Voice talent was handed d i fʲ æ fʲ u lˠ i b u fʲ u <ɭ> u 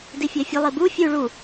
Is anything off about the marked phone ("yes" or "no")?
no